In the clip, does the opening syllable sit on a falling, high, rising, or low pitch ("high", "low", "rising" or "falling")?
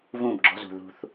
falling